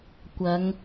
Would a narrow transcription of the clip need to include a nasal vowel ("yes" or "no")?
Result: no